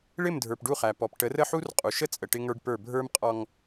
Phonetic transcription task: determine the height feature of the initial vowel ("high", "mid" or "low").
high